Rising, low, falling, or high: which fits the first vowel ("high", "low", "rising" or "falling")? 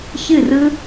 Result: falling